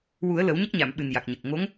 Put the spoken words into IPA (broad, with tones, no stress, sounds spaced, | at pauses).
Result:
w u˨˩˦ ə̯ l ə˨˩˦ w ɲ ə˦˥ k̚ ɲ a˨˩˨ m ɓ ɨ˨˩ n j a˨˩ k̚ ɲ ə˨˩ k̚ ŋ o˧˥ ŋ